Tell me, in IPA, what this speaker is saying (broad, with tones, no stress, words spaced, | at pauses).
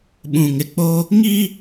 ɓũ˨ŋɪ˨k͡po˦ | ŋi˦